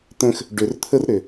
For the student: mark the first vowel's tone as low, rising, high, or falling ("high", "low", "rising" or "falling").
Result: high